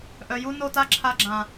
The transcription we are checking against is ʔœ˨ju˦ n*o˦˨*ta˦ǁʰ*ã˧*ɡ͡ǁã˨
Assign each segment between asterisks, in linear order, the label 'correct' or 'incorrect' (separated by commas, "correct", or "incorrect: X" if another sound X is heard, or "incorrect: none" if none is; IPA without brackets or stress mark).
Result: correct, incorrect: a˧